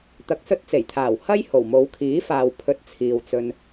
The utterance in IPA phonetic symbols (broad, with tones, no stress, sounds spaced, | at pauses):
t̪ ɐ˨˥ k̚ s ɵ˧ t̚ t͡s e˨˩ j t̪ʰ aː˨˩ w h ɐ˥ j h o˨˩ w m o˨˧ w kʰ iː˨˥ f aː˨ w pʰ ɵ˧ t̚ t͡sʰ iː˨ w t͡s ɵ˧ n